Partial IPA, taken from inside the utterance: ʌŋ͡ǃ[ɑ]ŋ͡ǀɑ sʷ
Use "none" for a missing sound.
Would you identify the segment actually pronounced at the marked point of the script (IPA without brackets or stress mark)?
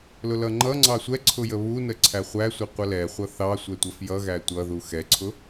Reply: ʌ